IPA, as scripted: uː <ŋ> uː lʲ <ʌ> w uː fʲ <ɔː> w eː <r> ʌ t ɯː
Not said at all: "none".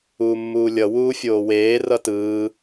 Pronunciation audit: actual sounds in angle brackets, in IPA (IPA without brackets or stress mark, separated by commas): mː, ʌ, oː, r